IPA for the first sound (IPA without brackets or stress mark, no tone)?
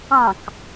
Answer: ɑ̃